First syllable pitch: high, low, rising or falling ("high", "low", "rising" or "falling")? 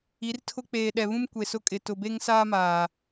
rising